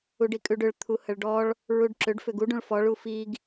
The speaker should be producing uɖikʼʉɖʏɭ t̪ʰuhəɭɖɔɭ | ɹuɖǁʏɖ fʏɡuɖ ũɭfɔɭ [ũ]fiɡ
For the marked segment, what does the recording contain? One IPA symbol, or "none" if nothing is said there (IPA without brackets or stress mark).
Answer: u